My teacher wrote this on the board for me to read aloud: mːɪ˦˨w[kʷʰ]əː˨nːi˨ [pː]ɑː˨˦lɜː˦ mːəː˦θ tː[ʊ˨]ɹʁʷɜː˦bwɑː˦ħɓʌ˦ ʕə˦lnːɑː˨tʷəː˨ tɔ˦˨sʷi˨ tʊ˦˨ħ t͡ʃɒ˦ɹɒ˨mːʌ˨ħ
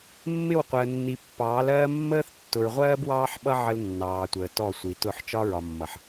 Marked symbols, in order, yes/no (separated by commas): no, yes, yes